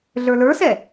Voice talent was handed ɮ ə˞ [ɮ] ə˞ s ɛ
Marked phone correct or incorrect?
incorrect